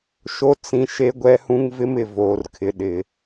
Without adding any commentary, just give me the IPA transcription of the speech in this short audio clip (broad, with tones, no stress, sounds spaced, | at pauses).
ʃ o˦ t͡s ĩ˦ ʃ e˦ ɡʷ ɛ˦ h ũ˦ ŋ v ɪ˦ m ɪ˨ v oː˨ r kʰ ɪ˨ ɗ ɪ˨